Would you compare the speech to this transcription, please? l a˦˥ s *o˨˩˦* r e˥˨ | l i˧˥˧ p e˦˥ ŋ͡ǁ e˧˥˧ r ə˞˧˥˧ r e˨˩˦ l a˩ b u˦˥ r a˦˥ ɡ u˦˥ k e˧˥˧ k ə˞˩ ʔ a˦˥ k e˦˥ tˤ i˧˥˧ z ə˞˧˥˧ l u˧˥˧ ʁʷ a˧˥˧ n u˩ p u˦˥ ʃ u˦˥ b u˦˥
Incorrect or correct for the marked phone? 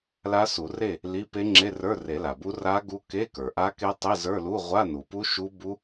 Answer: incorrect: u˨˩˦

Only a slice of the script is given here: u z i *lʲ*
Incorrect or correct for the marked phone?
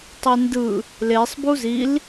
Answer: incorrect: l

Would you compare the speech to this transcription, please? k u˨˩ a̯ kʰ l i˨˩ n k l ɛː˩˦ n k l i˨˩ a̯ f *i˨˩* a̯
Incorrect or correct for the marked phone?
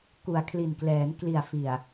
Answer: correct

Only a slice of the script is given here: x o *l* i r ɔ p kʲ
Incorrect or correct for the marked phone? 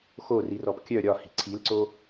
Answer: incorrect: r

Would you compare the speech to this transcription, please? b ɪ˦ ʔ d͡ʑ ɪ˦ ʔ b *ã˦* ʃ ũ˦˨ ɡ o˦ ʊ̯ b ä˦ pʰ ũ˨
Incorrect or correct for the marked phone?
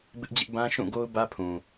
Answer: correct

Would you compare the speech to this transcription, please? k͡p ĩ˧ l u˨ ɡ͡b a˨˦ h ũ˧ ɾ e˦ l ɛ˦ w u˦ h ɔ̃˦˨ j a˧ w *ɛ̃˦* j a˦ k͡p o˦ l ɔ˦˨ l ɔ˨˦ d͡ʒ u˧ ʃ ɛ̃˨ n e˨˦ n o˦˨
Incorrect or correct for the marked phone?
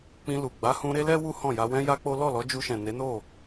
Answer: correct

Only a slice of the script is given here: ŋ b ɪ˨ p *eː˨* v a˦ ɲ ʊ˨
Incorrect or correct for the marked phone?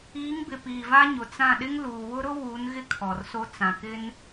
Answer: incorrect: iː˨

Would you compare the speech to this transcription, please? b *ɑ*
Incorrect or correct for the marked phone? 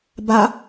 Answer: incorrect: a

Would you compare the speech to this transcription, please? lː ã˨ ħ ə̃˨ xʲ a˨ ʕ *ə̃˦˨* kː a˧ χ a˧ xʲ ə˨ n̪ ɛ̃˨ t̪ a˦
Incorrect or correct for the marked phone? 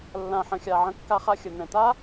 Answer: incorrect: ə̃˧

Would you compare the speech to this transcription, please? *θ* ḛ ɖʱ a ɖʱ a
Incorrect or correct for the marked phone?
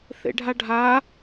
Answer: correct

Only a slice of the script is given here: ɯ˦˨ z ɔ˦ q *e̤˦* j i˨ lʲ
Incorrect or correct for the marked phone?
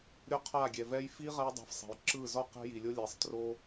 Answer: correct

